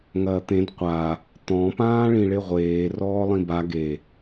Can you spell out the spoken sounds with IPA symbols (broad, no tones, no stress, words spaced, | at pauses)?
ŋɐːt̪ẽd qʷa | t̪ɔ̃ pãːɭĩɭeʁʷeː rɔːlˠĩba ɡe